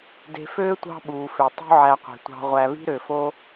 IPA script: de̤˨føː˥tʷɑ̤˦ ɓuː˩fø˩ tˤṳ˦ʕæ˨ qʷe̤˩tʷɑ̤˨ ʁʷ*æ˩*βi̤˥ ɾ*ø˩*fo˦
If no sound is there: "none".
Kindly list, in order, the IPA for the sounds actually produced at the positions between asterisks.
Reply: æ˨, ø˩

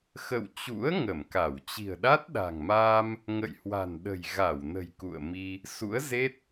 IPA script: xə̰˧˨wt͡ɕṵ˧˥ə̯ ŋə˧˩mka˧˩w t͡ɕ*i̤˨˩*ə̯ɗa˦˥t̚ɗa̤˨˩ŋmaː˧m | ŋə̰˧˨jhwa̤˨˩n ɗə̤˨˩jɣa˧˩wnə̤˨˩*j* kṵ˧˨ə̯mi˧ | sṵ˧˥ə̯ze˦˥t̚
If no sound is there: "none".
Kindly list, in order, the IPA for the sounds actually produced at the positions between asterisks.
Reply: i̤˨˩, j

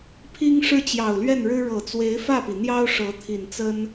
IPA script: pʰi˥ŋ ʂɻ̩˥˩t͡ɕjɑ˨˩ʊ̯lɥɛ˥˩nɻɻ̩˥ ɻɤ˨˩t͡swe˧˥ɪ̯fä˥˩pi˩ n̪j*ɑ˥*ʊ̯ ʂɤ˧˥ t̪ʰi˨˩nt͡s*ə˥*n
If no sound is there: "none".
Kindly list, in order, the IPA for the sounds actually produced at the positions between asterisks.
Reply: ɑ˥, ə˥

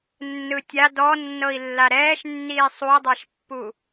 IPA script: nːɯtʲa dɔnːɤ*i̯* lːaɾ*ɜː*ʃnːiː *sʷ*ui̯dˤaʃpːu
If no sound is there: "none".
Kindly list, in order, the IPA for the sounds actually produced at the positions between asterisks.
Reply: i̯, ɛː, sˤ

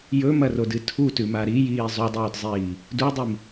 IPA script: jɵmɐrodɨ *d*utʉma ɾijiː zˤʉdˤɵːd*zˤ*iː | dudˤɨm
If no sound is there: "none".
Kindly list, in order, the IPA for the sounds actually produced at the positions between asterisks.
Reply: tʰ, zˤ

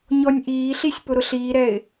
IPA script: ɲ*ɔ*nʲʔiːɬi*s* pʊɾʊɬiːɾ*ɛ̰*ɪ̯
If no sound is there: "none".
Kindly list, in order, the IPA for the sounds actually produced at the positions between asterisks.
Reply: ɔ, sʲ, ɛ

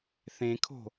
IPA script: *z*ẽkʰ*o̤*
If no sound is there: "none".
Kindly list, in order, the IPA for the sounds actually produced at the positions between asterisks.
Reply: θ, o̤

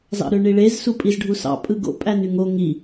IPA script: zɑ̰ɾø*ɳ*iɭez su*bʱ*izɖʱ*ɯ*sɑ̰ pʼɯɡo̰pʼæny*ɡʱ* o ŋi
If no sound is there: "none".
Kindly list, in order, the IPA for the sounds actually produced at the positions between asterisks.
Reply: ɳ, pʼ, u, ŋ

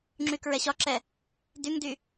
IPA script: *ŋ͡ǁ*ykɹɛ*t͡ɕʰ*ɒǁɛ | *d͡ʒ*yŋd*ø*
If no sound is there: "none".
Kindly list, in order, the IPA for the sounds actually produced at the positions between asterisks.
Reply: ŋ͡ǁ, ɕ, d, y

